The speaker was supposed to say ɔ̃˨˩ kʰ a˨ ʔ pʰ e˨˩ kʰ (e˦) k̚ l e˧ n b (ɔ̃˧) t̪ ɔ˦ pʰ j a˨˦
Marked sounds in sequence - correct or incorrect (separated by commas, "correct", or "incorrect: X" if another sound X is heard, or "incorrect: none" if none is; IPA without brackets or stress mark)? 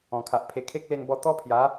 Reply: correct, incorrect: ɔ˧